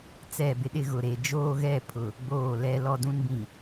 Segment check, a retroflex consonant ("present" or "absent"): absent